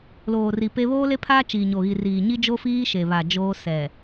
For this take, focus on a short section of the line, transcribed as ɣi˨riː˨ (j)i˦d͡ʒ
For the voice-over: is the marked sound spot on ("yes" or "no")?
no